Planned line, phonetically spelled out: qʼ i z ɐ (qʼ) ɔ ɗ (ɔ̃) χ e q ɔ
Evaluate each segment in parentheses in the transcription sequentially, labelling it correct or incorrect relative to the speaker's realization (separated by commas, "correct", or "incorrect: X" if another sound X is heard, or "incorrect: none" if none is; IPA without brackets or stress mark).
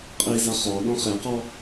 incorrect: χ, correct